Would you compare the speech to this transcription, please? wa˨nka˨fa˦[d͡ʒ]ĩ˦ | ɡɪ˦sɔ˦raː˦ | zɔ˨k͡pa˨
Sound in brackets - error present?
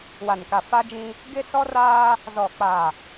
no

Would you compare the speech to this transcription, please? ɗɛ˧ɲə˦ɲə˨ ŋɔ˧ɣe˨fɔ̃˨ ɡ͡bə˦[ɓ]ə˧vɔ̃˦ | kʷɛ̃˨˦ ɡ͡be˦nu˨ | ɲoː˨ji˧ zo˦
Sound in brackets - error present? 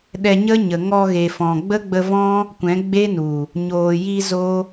yes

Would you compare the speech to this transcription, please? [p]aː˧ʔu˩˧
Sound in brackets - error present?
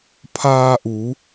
yes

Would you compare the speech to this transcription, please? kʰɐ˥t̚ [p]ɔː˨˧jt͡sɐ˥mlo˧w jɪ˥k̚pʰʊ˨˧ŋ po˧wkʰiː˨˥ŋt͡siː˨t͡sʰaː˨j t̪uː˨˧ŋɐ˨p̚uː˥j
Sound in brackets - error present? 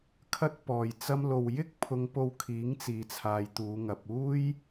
no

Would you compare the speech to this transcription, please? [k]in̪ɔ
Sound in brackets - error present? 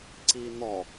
yes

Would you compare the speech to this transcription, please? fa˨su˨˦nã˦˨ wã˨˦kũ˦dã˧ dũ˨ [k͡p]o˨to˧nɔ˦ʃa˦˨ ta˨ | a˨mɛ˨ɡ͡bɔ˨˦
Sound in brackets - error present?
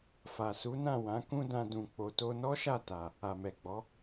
no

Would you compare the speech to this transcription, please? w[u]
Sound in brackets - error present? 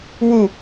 no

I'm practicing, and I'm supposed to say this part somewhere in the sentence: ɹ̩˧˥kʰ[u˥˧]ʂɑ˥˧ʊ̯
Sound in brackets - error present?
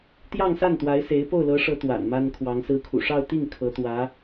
yes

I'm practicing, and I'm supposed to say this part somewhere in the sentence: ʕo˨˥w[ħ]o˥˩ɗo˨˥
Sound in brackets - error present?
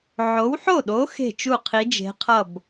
no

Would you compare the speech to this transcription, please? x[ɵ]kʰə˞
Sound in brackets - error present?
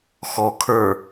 yes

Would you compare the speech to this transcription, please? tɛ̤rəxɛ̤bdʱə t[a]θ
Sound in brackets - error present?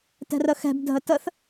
yes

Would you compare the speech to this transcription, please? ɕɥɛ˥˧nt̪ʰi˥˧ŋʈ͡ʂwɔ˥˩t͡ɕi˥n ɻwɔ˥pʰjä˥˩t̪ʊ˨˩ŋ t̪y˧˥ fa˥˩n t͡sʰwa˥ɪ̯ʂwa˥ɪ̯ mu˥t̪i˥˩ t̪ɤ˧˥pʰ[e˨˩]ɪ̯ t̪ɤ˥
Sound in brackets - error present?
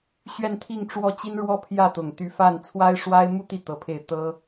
yes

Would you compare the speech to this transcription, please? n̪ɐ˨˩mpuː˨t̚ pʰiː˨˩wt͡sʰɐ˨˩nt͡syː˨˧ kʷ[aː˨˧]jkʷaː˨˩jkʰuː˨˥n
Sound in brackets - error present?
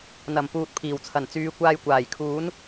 yes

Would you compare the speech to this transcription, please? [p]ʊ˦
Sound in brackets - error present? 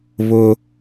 yes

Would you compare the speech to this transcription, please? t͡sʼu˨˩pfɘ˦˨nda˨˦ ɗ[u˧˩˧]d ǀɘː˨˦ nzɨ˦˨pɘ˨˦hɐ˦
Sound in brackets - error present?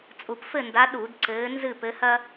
no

